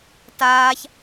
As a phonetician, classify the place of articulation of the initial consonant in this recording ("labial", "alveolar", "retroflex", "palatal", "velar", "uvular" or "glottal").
alveolar